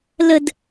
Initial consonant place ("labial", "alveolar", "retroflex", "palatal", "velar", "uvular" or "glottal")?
alveolar